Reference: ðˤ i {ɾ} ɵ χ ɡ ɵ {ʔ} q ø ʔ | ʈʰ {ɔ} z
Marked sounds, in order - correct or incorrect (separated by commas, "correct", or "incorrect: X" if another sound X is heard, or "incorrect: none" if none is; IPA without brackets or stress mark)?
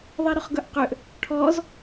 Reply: correct, correct, correct